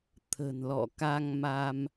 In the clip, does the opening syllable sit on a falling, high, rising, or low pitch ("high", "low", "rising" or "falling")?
low